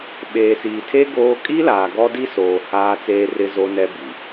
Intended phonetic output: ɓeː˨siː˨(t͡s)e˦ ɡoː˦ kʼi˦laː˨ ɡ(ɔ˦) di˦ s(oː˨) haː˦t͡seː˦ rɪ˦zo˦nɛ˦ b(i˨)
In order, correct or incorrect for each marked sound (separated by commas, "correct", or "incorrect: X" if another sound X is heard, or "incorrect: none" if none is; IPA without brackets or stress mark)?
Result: incorrect: tʰ, correct, correct, correct